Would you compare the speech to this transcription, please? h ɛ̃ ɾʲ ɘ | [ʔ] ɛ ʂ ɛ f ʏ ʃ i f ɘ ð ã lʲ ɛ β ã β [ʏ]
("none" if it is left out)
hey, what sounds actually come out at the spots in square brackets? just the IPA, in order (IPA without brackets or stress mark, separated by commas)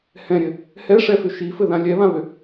h, ʏ